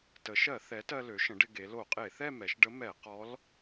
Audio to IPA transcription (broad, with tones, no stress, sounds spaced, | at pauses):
t ə˩˧ ʃ ɜ˧˩˧ θ ɛ˩˥ t ɜ˧ l ø˩˥ ʃ ə̃˩˥ ɖ ɪ˧ ɡ e˩˧ l o˧˩˧ qʼ e˧˩˧ θ ɛ˥˧ m ɛ˩˧ ʃ ɖ ə˧˥ m ɛ˧˩˧ q ɔ˧˥ l